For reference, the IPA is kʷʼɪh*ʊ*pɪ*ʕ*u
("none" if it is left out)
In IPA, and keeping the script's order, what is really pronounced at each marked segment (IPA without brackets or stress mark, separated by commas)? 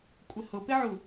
ʊ, ʕ